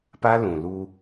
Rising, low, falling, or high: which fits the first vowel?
high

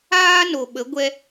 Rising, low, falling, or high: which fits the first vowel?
high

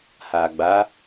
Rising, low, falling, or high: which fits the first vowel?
low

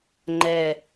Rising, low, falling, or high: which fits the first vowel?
low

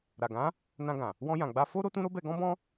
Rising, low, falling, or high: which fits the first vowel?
low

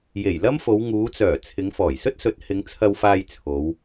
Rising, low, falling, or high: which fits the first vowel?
low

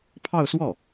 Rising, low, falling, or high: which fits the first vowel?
falling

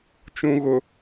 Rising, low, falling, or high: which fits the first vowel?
low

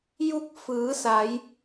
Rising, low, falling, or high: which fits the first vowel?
rising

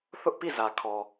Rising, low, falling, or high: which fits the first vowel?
high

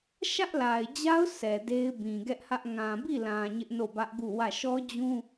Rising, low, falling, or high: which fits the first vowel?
high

